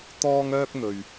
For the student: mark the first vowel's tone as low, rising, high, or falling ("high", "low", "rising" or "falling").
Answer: high